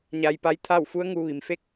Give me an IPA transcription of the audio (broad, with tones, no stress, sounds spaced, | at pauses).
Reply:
ɲ a˧ j p a˧˥ j t̪ʰ a˥˨ w f u˧˥ ə̯ ŋ uː˧ ʋ i˩ m f e˥˨ k̚